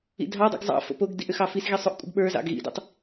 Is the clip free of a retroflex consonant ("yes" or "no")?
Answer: yes